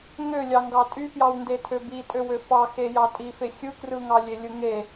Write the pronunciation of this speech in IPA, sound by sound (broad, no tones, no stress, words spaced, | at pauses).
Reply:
ŋølʲɑ ŋɡɑtʼypjɑwnde tʰøbitʼøwø fɑ xejɑtʼife xʲɯkrɯŋɑlʲe lʲɯŋe